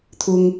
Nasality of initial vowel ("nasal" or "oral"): oral